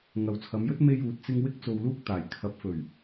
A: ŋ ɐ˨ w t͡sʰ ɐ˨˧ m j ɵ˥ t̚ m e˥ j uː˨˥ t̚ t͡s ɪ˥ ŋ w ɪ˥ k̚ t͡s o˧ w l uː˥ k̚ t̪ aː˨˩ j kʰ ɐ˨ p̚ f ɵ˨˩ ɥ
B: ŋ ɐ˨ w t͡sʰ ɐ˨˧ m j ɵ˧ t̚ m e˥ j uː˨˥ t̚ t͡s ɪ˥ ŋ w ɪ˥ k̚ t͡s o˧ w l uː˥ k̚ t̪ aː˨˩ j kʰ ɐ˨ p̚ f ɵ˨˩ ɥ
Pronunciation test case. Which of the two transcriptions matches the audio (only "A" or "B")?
A